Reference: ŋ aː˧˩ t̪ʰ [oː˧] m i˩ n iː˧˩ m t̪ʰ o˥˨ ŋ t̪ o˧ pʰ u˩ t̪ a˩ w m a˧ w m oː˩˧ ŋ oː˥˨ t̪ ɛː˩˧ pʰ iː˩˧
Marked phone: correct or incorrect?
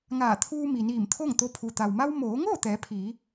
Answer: incorrect